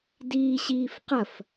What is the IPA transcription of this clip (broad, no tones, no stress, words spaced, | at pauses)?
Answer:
diːɕiːfqɐf